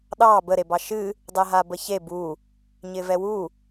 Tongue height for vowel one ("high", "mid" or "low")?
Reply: low